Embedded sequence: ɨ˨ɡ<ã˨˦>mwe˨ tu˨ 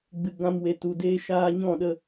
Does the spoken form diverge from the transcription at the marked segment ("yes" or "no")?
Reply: yes